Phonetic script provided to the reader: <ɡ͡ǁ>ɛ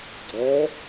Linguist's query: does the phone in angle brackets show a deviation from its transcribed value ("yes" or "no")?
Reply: yes